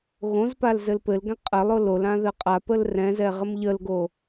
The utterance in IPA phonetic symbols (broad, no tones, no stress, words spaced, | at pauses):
ɣõzpal zɘlpɘlɡɛ̃ qʼɘlˠo lol ãðɘqʼapəl rɛ̃zɛ ʁəmʎəlɡo